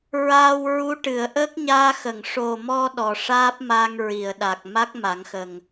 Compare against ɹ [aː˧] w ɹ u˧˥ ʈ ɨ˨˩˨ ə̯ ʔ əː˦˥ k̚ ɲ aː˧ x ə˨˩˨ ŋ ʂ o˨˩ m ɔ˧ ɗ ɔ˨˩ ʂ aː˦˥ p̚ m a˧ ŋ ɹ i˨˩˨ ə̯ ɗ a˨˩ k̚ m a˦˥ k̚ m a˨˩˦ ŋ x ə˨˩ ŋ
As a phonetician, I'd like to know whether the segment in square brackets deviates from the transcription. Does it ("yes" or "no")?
no